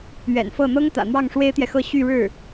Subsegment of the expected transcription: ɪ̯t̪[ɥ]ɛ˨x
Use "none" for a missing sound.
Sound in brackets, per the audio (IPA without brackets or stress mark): j